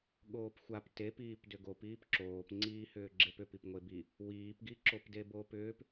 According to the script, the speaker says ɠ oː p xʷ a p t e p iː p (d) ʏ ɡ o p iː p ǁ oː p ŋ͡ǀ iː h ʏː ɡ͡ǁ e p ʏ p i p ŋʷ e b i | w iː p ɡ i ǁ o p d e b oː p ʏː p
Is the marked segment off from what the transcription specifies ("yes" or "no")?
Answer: no